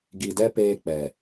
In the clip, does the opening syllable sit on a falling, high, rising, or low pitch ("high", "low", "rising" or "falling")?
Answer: low